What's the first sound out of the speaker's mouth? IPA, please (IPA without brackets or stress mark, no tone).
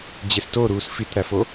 d͡ʑ